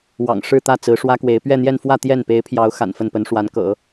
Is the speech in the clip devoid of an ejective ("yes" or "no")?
yes